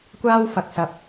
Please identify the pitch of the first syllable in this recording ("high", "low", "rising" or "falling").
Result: high